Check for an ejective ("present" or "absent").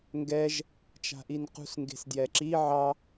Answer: absent